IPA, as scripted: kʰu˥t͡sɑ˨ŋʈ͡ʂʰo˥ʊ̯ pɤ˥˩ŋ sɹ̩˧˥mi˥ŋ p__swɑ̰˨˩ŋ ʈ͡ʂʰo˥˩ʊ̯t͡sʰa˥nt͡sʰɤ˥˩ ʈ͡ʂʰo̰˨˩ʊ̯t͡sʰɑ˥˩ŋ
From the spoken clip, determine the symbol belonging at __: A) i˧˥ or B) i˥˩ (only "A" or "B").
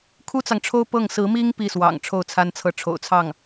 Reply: B